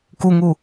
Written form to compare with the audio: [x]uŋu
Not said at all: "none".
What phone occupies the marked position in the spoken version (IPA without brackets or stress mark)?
k